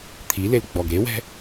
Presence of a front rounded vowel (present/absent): absent